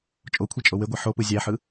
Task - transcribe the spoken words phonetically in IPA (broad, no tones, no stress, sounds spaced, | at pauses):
t͡ʃʼ o kʷʰ e t͡ʃʼ o w e ɡʷ e ħ o p ɯ zʲ æ ħ ɯ